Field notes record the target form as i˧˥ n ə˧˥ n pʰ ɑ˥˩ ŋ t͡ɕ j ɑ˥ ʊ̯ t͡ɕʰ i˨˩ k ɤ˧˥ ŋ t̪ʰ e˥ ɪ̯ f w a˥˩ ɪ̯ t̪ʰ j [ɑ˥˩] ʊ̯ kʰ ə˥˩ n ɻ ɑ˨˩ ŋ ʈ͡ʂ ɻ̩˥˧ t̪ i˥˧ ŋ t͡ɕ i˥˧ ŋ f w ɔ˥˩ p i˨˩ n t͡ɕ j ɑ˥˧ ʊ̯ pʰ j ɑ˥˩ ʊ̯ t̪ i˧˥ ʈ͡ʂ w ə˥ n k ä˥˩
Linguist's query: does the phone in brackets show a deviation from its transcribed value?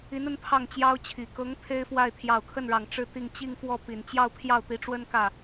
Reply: yes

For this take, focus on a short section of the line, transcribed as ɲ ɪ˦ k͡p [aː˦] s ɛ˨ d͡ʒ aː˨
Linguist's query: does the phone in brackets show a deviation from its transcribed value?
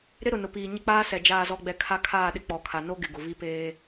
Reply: no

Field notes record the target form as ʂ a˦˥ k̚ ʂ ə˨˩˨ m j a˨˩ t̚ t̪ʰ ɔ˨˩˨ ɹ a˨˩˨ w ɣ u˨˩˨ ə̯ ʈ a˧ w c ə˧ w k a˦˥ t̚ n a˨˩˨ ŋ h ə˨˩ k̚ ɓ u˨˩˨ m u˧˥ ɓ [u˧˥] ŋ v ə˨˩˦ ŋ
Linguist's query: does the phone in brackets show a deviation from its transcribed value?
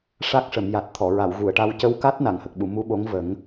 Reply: yes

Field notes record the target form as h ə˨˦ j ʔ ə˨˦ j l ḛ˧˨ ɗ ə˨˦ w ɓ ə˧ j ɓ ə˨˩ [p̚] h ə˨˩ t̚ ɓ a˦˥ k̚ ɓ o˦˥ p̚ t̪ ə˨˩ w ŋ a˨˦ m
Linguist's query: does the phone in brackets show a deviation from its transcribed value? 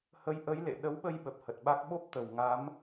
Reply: no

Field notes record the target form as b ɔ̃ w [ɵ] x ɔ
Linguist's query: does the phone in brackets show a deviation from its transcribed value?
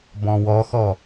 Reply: yes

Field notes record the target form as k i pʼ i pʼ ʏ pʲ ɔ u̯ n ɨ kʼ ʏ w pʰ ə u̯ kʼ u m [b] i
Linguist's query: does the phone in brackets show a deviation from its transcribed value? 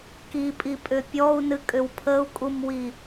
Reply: yes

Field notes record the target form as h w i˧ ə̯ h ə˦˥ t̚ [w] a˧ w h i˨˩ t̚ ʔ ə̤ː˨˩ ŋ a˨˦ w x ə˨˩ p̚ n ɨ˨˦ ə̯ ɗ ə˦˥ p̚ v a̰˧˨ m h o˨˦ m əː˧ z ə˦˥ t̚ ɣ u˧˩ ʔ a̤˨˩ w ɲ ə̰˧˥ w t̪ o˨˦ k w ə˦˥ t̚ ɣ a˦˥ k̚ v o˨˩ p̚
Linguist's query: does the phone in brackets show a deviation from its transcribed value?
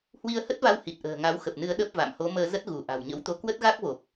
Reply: yes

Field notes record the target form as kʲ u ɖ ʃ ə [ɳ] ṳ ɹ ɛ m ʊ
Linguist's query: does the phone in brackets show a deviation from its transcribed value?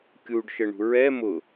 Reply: no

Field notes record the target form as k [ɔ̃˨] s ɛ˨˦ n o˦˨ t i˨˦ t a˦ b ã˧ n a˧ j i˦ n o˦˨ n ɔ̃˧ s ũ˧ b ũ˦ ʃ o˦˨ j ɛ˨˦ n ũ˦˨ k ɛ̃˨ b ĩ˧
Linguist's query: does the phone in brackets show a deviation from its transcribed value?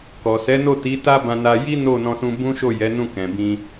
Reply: yes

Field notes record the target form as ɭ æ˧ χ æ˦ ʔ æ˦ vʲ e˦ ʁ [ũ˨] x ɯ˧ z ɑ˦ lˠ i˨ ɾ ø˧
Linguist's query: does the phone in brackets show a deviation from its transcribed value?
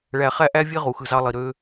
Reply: yes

